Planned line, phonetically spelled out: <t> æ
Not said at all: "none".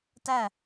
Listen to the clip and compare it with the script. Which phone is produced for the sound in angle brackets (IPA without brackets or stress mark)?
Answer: t